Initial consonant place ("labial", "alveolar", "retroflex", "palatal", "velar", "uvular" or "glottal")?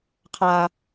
uvular